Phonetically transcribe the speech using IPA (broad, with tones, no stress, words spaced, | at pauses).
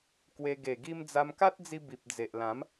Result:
kwe˧ ɡe˨˩ɡi˧m d͡za˧mka˦t̚d͡zi˧ bi˨p̚d͡ze˨ʔ lã˨˦m